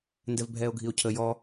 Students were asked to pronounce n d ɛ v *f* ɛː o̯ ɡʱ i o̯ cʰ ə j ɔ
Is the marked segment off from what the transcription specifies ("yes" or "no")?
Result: yes